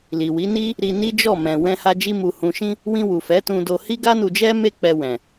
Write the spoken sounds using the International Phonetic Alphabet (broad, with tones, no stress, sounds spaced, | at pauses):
l i˨ w i˨˦ n i˦ | ɾ i˧ n i˦ d͡ʒ ɔ˦˨ m ɛ̃˨ w ɛ̃˧ h a˧ d͡ʒ i˧ m u˨ h ũ˨ ʃ ĩ˧ | w ĩ˧ w u˨ f ɛ˨˦ t ũ˧ d o˧ h i˦ ɡ a˦ n u˧ d͡ʒ ɛ˦ m e˦ k͡p ɛ˧ w ɛ̃˨